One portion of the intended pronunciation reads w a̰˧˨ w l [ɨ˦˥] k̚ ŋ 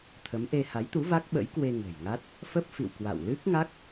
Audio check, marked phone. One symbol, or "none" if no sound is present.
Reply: ɨ˦˥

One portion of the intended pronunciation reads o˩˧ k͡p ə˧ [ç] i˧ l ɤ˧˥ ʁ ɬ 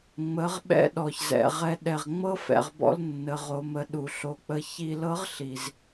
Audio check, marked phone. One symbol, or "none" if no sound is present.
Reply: ç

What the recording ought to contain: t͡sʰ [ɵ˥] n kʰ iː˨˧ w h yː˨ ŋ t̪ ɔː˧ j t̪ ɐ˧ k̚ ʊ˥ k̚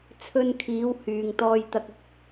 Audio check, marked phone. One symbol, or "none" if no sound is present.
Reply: ɵ˧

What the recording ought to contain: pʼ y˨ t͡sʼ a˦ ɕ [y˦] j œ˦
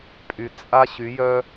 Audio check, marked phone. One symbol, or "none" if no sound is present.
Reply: y˨˦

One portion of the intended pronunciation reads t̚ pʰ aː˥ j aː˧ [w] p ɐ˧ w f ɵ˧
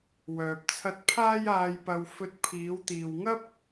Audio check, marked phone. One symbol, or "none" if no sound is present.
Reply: j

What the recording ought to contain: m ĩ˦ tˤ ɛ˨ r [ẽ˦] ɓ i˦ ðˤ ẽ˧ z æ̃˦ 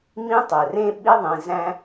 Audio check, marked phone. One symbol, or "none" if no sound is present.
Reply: ẽ˦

